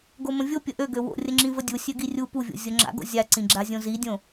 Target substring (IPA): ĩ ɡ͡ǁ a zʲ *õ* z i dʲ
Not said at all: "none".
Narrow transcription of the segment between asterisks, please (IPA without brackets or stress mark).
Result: õ